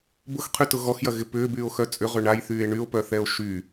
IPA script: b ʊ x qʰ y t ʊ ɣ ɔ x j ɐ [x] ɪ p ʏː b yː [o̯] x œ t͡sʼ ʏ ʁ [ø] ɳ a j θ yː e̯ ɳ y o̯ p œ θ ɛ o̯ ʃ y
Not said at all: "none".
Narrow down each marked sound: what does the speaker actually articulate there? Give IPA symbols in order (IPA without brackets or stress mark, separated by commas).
ɣ, o̯, ø